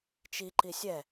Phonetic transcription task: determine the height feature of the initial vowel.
high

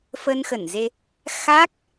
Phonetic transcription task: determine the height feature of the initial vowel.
mid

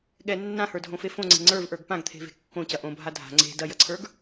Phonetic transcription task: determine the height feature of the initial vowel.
mid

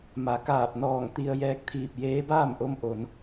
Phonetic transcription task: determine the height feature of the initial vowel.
low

